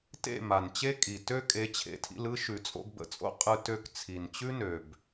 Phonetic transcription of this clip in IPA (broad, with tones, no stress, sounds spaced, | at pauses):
t ḛ˦˨ m a˨ n t͡ɕ e˦ kʼ i˨ t ø˦ kʼ e˨˦ t͡ɕʰ ḛ˨ tʰ ḭ˧ l ɯ˦ ʃ ʉ˨ t͡sʼ o̰˧ ɡ b ə̰˨ t͡sʼ o̰˦ qʼ ɯ˧ t ø˧ k t͡sʰ i˨ n t͡ɕ ʉ˦ n ø˨ b